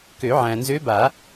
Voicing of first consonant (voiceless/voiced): voiceless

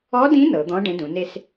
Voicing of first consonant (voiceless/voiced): voiced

